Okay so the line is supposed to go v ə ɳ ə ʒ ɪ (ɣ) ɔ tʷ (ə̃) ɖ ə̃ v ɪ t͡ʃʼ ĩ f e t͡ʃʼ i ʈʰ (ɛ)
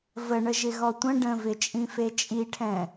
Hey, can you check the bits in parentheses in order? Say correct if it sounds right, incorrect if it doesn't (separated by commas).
correct, correct, incorrect